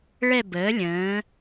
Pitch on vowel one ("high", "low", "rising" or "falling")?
falling